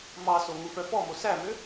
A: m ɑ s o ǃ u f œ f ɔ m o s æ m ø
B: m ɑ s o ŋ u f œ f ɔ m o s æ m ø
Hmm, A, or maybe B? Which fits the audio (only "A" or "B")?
B